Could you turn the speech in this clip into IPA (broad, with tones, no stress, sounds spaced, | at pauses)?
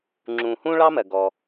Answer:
ŋ͡ǁ ũ˨ h ũ˥ ɭ ɑ˥ m ɜ˩ ɡ ɔ˩